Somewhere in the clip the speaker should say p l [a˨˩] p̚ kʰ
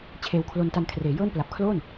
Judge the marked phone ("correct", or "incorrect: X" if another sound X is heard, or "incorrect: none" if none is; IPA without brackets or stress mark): correct